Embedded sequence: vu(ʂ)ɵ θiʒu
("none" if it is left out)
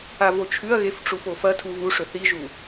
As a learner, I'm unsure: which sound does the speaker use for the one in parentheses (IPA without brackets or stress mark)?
ʂ